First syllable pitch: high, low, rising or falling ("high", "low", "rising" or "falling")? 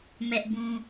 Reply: high